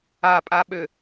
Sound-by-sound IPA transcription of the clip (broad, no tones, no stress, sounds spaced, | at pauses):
a pʼ a ɓ ø